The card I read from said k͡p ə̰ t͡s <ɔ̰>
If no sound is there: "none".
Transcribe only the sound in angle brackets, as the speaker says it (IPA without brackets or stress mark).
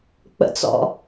ɔ̰